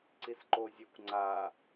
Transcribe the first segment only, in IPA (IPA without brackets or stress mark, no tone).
ǀ